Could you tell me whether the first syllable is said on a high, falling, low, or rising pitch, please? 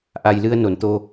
low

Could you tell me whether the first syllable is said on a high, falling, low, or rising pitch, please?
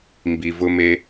low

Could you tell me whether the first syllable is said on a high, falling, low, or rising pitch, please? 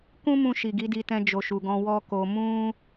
high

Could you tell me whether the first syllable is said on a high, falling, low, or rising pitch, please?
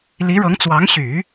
rising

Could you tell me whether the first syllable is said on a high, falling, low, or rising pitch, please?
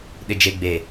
low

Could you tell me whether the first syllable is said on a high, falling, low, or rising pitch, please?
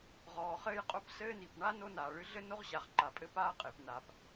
low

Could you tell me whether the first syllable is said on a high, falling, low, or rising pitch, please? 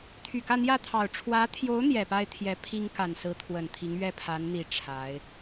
low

